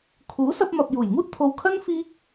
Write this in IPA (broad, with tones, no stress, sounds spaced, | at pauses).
kʰ uː˨˥ s ɐ˧ p̚ m ɐ˨ p̚ j uː˨˩ j ŋ uː˥ t̚ t̪ʰ o˨ w kʰ ɐ˥ n f iː˥ k̚